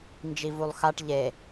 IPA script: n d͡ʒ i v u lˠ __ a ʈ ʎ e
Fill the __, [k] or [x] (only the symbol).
x